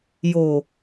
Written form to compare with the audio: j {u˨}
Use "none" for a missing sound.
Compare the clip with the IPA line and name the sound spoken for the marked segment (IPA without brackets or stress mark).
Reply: o˨